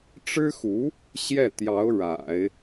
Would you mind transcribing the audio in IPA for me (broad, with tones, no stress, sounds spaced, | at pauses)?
ʈ͡ʂ ɻ̩˥ x u˧˥ | ɕ j ɛ˥˩ t̪ j ɑ˧˥ ʊ̯ ɻ a̰˨˩˦ ɪ̯